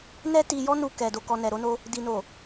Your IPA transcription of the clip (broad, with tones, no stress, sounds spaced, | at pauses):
n ɛ˦ t i˧ j ɔ˦ n u˧ k ɛ˨ d o˨ k ɔ˨ n ɛ˨ ɾ o˧ n o˧ | d i˨ n o˨